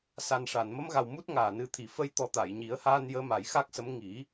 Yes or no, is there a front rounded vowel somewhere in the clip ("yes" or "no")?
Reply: no